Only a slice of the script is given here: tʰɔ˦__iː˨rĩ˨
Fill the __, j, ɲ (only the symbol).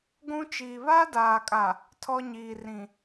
ɲ